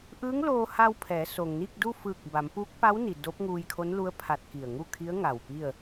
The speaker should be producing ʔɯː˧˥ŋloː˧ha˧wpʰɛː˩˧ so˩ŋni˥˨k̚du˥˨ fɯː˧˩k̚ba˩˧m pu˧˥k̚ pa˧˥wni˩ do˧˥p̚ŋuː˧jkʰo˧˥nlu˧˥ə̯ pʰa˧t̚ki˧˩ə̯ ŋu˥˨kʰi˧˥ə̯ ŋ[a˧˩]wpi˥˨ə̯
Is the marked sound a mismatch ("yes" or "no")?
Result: no